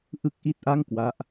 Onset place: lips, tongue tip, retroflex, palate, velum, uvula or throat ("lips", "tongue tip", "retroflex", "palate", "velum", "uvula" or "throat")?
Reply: throat